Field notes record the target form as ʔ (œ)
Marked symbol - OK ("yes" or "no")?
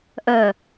yes